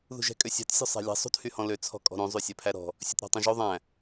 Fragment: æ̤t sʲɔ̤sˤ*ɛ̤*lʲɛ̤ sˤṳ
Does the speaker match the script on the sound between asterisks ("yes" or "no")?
no